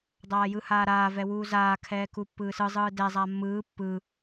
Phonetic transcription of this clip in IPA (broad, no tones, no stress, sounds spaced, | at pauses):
dˤ aː j ɯ h aː ɾ aː v ɛ w uː z aː kʰ ɛː k u pː ɯː s ɯ zˤ ɯː d ɛ zˤ a mː ɯː pː ɯ